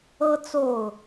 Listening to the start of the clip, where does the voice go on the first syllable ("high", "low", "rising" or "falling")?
high